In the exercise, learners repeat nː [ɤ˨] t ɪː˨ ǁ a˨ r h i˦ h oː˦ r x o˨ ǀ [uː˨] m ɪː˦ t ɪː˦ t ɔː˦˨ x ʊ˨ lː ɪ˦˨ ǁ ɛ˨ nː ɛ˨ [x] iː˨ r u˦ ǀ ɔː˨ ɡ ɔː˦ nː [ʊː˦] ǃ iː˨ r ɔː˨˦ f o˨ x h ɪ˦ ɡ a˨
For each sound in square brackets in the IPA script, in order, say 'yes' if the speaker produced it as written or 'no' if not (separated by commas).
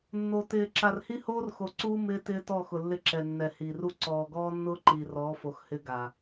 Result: no, no, no, yes